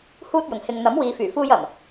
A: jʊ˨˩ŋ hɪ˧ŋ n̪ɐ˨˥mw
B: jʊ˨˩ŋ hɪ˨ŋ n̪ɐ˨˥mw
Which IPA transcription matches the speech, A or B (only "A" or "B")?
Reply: B